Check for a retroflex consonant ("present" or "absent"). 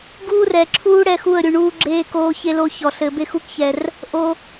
present